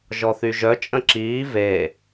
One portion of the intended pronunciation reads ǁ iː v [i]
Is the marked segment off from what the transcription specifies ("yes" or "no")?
yes